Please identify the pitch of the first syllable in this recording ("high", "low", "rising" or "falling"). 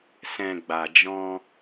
low